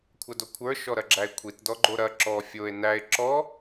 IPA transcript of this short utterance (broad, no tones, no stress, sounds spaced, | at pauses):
kʷʰ ɐ d o kʷʰ ə˞ ʃ ɔ ɾ ɐ ɡ͡ǁ æ e̯ kʷʰ i t d ɔ ɡ͡ǃ o ɾ ɐ ǁ ɔ fʲ o e̯ n æ e̯ ǁ ɔ